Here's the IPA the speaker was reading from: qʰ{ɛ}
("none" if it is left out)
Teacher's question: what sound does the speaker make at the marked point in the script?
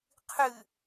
ɨ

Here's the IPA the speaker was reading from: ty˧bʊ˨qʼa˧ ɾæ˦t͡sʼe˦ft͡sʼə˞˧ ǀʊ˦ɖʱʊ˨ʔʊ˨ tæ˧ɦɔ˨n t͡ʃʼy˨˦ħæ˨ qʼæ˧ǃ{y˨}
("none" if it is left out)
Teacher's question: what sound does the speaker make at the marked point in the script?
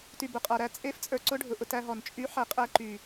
y˨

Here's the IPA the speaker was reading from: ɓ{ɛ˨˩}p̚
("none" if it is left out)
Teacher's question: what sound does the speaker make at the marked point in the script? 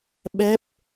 ɛ˦˥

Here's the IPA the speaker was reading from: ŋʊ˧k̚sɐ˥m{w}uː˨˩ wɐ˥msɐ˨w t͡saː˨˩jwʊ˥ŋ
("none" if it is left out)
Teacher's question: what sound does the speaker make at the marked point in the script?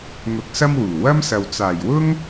w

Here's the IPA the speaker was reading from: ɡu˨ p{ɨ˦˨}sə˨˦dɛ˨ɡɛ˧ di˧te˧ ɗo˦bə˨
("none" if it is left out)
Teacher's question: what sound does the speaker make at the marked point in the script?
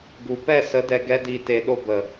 ɛ˦˨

